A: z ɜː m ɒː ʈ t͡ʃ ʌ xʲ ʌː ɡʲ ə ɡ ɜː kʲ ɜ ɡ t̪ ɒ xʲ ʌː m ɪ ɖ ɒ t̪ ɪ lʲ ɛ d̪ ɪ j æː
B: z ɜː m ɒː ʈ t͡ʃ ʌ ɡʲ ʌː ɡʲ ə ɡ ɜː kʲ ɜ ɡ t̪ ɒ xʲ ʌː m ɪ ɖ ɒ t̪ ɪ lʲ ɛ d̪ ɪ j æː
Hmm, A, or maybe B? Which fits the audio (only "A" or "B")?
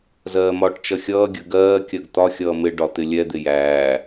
A